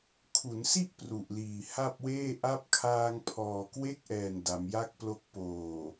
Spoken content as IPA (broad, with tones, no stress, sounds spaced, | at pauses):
kʰ u˩˦ n s i˥˩ ʔ p r u˨˩ ʔ l iː˨˩ h a˥˩ p̚ w eː˥˩ ʔ a˦˥ p̚ kʰ aː˧ ŋ pʰ ɔː˨˩ k w e˥˩ k̚ ʔ ɛː˨˩ n d a˩˦ m j a˥˩ k̚ p l o˦˥ k̚ p oː˨˩